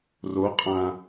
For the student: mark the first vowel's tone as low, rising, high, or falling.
rising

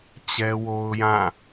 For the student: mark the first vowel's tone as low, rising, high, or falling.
high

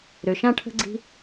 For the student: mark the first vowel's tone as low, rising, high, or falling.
low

